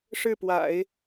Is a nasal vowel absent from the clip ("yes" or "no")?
yes